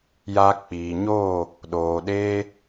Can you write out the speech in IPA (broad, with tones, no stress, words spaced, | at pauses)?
ja˧ k͡piː˨ɲoː˦˨ | ɗoː˨ɗeː˧